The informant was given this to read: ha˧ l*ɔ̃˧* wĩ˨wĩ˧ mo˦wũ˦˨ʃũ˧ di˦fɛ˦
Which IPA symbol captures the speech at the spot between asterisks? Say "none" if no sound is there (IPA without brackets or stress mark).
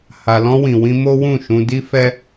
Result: ɔ̃˧